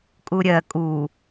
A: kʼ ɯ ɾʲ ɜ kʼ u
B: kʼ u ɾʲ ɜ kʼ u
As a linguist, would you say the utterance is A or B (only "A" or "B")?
B